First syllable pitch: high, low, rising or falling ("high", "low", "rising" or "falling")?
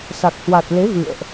low